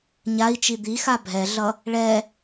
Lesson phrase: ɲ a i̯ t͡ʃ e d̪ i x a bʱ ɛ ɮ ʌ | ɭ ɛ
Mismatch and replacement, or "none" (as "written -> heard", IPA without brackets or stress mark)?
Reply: e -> i